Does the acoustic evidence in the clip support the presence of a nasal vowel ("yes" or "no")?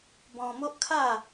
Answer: yes